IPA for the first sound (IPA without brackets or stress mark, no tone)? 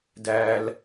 d